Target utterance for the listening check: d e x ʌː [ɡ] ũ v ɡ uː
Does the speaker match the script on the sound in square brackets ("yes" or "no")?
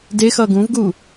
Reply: yes